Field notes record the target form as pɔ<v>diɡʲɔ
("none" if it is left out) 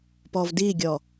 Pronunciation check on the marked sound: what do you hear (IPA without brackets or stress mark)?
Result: v